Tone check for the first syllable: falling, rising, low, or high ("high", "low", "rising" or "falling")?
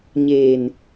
low